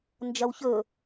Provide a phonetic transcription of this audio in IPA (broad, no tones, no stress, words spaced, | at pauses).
nd͡ʒɐwçɵ